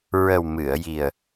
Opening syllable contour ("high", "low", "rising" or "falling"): low